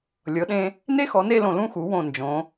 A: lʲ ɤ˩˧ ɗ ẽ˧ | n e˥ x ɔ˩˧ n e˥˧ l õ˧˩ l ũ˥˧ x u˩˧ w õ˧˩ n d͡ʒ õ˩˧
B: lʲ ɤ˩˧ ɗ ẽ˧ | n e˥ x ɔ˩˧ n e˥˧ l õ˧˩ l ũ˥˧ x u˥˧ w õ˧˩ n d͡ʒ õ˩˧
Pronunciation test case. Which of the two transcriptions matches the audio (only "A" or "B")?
A